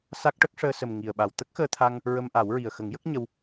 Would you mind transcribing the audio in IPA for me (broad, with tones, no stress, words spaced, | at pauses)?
sa˦˥k̚ʈə˦˥k̚ ʂəː˧sə˨˩m ŋi˨˩ə̯ɓa˨˩w t̪ə˦˥k̚xəː˧t̪ʰa˧ŋ | ɹə˧mʔa˨˩˦wɹi˨˩ə̯ xə˨˩˦ŋjə˦˥k̚ ɲə˧w